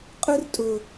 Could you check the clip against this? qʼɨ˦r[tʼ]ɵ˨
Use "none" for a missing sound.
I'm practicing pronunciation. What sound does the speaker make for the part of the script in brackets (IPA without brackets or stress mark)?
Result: tʼ